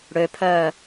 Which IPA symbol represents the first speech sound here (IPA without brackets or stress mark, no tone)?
ɽ